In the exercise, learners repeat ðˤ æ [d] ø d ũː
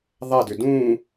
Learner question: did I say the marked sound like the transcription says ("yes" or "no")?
yes